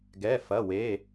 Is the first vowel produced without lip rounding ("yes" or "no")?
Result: yes